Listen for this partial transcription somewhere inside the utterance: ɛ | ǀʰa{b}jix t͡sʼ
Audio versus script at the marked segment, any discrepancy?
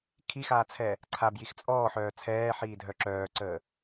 no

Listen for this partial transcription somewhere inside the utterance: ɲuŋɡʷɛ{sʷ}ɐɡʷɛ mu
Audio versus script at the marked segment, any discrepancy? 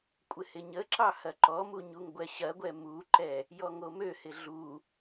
yes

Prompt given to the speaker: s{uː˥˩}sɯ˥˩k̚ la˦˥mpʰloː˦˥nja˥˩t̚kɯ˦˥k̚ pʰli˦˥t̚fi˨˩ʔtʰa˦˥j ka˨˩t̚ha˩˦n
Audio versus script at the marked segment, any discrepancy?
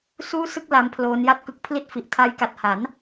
no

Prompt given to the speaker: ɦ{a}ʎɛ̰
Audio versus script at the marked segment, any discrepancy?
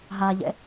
no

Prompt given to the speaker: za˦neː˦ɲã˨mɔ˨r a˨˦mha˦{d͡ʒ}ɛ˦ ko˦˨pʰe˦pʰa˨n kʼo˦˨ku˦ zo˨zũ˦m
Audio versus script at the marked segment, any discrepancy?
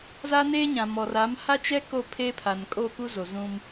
yes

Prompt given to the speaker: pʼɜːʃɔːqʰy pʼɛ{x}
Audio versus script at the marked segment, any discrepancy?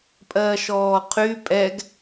yes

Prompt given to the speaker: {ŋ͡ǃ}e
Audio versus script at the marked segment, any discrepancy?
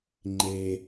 no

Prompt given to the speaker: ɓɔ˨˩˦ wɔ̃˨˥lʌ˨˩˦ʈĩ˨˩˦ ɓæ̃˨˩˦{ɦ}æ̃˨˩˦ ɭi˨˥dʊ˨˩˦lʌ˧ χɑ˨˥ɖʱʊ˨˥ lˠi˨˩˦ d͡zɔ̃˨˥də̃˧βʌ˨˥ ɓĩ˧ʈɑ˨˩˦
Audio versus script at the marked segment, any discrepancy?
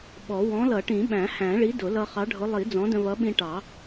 yes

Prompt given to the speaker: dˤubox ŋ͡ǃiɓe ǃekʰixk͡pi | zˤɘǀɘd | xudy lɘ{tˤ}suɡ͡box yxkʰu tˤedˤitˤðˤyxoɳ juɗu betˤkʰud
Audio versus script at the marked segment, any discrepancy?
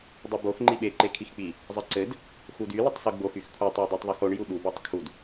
no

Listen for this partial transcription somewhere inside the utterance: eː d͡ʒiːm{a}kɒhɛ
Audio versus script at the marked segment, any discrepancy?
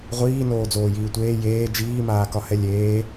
yes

